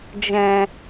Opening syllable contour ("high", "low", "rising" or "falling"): low